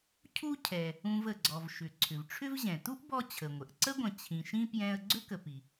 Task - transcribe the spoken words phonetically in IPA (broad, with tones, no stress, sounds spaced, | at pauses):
cʰ u˦ cʰ ɛ˩ | ũ˨ v ə˩ ɡ͡ǀ ɔ˩ v ʃ ʏ˩ ǀʰ ʏ˩ v ʈ͡ʂʰ ʏ˦ v ʑ ɛ̃˩ t u˥ ʔ b ɔ˦ t͡ɕʰ ə˩ ŋʷ ə˩ ʔ ǀ ə˥ ɡʷ ə̃˨ t͡ɕʰ ĩ˨ ʃ ĩ˥ p j ɛ̃˦ ə̯ ɡ͡ǀ ʏ˥ k ə˨ p i˩